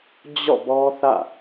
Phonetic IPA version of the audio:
d͡ʑ ɔ̰˦˨ b ɔ˦ θ ä̰˦˨

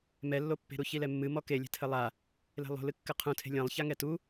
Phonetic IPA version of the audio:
m ɛ lː o pː e̤ ɾ u ç i l ɛ mː ɨ m ɔ k e lʲ ɛ̤ tʰ ɘ lˠ a | l e̤ lˠ o̤ l ɨ kː ɘ qʰ ũ tʰ e̤ lʲ ɐ̃ lˠ ç a ŋ ɛ t u

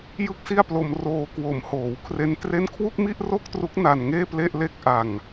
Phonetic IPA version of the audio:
j ɯ˥˩ k̚ s i˥˩ a̯ p l o˧ m r oː˧ k w o˩˦ m h oː˩˦ w kʰ r e˦˥ n t r e˥˩ n kʰ w u˥˩ k̚ m i˥˩ ʔ r o˥˩ k̚ t r u˦˥ k̚ n a˧ n ŋ eː˥˩ p l e˥˩ ʔ l e˥˩ k̚ ʔ a˧ ŋ

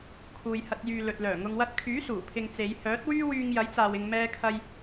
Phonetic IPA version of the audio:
kʰ uː˨ j h ɐ˧ t̚ j yː˨ l ɵ˨ t̚ l œː˨˩ ŋ ʊ˨ ŋ w ɐ˧ t̚ kʰ yː˨˥ s uː˨˩ pʰ ɪ˧ ŋ t͡s e˨˧ j h œː˨˥ t̚ w yː˥ w yː˧ ŋ j ɐ˨˥ j t͡s aː˨ w ɪ˨ ŋ m ɛː˧ kʰ ɐ˧ j

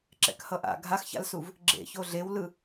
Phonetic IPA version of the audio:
ǁ ɛ̰ k h ʌ ʔ a̰ ɡʱ a x ç a̰ l s u v | ɡ͡ǁ ḛ ç o ɮ e w l ɯ

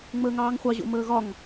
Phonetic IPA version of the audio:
ŋ͡m əː ŋ ɑː ŋ χʷ ɑ ʑ o̰ m əː ɣ ɒ ŋ

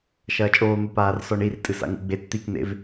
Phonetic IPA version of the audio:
ʃ ɐː t͡ʃʼ oː n̪ u p aː r s ɔ ɳ i r tʼ ɨ s a̰ ŋ ṵ ɡ͡b e t t̪ i k n̪ ḛ v

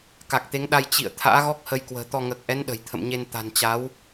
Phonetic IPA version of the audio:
k a˨˩ k̚ t̪ e˨˦ ŋ ɗ a˧ j t͡ɕ ḭ˧˨ ə̯ t̪ʰ a̰ː˧˥ ɣ ɔ˦˥ k̚ h ə˧ j k w ə̤ː˨˩ t̪ ɔ˧ ŋ əː˨˩ k̚ ʔ ɛ˨˦ n ɗ ə̤˨˩ j t̪ʰ ə̰˧˨ m ɲ e˧ n t̪ a̤˨˩ n t͡ɕ a˨˦ w

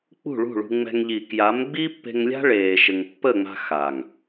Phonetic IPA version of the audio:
k͡p ṳ˦˨ ɭ ṳ˦˨ ɭ ṳ˧ ŋ͡m ɛ̤˧ ŋ ʎ i˨ k j a˨˦ m ɡ͡b i˦ pː e̤˧ ŋ lʲ a̤˦ ɭ eː˧ ʃ ɘ˧ ŋ pː ə˦˨ ŋ͡m a̤˧ x a˨ ŋ

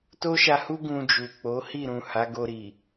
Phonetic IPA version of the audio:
t o˦ ʃ a˧ h u˦ ɡ ũ˧ d͡ʒ u˨ k͡p o˨˦ h i˦˨ ɾ ũ˨ h a˨˦ ɡ o˧ ɾ i˨

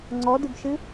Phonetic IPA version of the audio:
ŋ͡ǀ ɔ d ɨ b ʃ ɨ

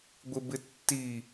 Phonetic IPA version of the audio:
ɡʷ ɪ b ɪ tː i

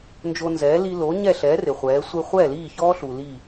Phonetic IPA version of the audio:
n d͡ʒ o˧ n z ɛː˩˥ l i˧ l o˩˥ ɲ ɛ˥˩ ɬ ɛ˩˥ r ɪ˩ χʷ ɛː˩˥ sʷ e˧ χʷ ɛː˥˩ l iː˥˩ ç ɔː˥ ɬ u˩ l i˥˩

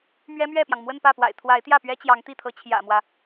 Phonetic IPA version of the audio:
m ɥ ɛ˥ m ɥ ɛ˥˩ p j ɑ˩ ŋ m w ə˥˧ n p ä˥˩ p w a̰˨˩ ɪ̯ t̪ʰ w a˧˥ ɪ̯ t̪ j ä˥˩ p ɥ ɛ˥ t͡ɕ j ɑ˧˥ ŋ t̪ i˥˩ t̪ʰ ɤ˧˥ t͡ɕʰ j ä̰˨˩ m w ä˦

